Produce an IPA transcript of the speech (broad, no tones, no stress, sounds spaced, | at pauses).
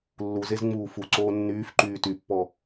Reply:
lː u z e z ŋ͡m uː f u ǀ oː nː yː f ǃ yː t y pː ɔ